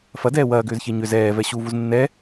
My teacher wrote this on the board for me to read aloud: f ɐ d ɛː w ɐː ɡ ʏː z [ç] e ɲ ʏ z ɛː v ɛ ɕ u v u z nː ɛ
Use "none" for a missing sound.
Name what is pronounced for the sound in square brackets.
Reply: ç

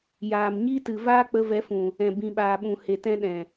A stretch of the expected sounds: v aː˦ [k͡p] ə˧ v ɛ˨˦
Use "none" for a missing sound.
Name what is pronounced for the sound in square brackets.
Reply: k͡p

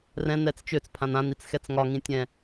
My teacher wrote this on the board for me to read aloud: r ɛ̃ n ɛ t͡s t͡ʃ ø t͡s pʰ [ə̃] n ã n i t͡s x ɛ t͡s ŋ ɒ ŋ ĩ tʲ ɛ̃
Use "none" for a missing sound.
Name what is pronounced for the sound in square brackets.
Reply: ã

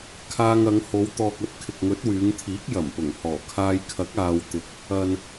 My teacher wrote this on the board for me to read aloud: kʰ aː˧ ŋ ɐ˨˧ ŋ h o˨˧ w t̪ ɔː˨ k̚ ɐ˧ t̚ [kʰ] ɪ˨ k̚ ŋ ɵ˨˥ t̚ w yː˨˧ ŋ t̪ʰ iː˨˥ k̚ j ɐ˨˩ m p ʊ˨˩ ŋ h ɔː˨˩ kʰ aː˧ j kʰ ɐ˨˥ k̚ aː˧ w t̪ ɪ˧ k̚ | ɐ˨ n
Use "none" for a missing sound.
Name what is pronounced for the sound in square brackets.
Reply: kʰ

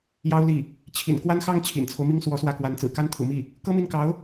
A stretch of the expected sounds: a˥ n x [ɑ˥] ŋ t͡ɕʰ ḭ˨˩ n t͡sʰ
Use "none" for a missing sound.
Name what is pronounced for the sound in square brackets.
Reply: ɑ˥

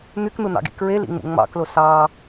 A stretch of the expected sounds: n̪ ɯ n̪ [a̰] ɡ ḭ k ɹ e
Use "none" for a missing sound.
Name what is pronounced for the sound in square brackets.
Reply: ɑ̰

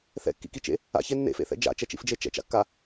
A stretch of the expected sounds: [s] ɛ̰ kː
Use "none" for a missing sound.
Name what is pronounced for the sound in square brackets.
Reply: θ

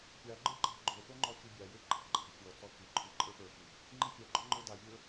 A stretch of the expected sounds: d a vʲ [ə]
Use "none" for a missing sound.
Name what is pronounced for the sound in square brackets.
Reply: ə˞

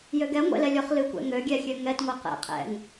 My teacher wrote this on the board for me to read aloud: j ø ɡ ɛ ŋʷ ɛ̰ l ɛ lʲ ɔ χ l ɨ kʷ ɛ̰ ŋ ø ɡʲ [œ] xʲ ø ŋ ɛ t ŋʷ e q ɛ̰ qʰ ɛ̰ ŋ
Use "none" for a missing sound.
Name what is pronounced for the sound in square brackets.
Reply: ɛ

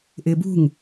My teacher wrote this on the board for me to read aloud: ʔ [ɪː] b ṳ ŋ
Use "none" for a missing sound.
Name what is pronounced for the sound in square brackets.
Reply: ɪː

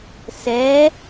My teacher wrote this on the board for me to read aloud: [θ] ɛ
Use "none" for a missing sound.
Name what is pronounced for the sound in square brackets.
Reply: s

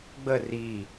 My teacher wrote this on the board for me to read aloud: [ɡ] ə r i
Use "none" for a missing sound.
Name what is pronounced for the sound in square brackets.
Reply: ɡ͡b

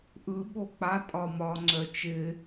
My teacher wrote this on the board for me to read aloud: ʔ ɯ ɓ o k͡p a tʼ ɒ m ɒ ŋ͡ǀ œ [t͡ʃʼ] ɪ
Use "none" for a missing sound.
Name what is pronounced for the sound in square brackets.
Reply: t͡ʃ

